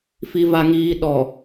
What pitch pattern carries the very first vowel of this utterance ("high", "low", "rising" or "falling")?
low